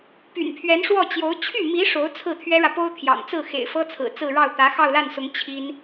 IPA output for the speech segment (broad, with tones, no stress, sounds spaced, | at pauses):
p y̰˨˩ n pʰ ɥ ɛ˧˥ n ʂ w ɔ˥˩ t͡ɕ j o˧˥ ʊ̯ t͡ɕʰ y˥˩ m i˧˥ ʂ o˧˥ ʊ̯ t͡sʰ ɹ̩˥˩ t̪ʰ ɥ ɛ˥ ɻ ä˨ p o˥ ʊ̯ t̪ʰ j ɑ̰˨˩ ŋ t͡s ɹ̩˥˩ x ḛ˨˩ ɪ̯ f ɤ˥ t͡sʰ ɹ̩˨˩ t͡s ɹ̩˥˧ ɻ ɑ˥˩ ʊ̯ t̪ ä˧˥ x ɑ˥˧ ʊ̯ l a˥˩ n s ʊ˧˥ ŋ t͡ɕʰ i˥ n